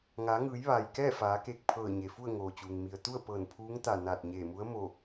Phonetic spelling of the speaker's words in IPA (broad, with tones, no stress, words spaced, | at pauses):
ŋaː˩˧ŋɯː˩˧j ʋaː˩jkɛː˥˨faː˩˧keː˧˩k̚ pʰɤː˧˩ɲe˩fu˥˨ə̯ ŋoː˩t͡ɕuː˩ŋ mi˩ə̯ t̪u˥˨ə̯pɤː˧˩n pʰuː˧˥ŋt̪a˧˩ naː˧˩t̚ɲeː˧˩mu˧˥ə̯mo˧˩